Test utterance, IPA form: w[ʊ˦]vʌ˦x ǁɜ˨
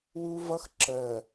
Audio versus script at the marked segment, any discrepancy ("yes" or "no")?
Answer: yes